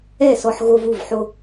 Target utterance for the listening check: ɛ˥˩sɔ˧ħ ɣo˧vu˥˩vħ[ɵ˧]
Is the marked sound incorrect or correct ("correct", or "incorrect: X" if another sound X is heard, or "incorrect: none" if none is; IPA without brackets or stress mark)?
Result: incorrect: o˧